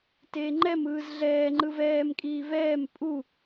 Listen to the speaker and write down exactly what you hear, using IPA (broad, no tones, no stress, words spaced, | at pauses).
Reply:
teːŋ͡ǃɛmɯːz ɮɛːŋ͡ǃɯv ɛːmkʼiː vɛːm pʼu